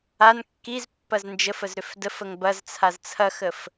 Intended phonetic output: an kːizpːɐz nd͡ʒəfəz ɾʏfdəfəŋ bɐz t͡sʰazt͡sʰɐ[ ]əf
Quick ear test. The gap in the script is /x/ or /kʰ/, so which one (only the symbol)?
x